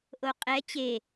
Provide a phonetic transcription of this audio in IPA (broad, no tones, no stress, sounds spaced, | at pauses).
ʔ o qʼ ɛ t͡ɕ e